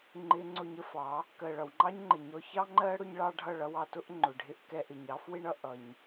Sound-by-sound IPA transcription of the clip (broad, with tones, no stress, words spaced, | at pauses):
ŋ͡ǃɪ˧ ŋ͡ǀʊ˧ɲə˦fɑ˨˦ | kɜ˨ɭʌ˨wŋ͡ǃɑ˦ɲŋ͡ǃɪ˨ ɲɔ˧çɑ˦ ŋ͡ǃɜ˦ ɽʊ˦ɲɭɑ˦ ɖʱʌ˦˨ɭʌ˧wɑ˧ tʊ˦ʔŋ͡ǃʊ˨ ɖʱɪ˦ʔ kɛ˧ʔɪ˨ɲɑ˦f wɪ˦ɳʌ˧ ʔʌ˧ɲ